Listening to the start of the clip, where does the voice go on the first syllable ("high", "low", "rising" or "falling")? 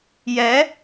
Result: rising